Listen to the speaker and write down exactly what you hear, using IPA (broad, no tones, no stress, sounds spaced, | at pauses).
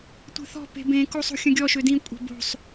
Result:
tʷ e̤ θ ɔ̤ p e̤ b ẽ k o sˤ o̤ xʲ ə̃ ɡʲ ɔ ʃ ø d ĩ kʷʼ ɛ̤ b o̤ sˤ